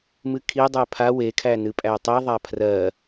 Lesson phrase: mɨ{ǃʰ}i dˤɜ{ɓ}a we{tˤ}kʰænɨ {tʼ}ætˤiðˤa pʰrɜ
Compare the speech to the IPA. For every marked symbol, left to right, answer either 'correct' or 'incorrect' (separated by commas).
incorrect, incorrect, incorrect, incorrect